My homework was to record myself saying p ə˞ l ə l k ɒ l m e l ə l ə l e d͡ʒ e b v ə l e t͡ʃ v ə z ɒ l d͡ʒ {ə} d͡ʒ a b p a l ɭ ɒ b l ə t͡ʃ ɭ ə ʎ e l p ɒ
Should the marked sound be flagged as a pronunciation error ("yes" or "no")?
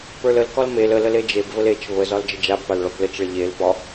no